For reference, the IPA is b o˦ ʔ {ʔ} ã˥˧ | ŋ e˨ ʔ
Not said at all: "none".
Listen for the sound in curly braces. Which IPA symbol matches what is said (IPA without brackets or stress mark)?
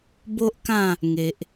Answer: k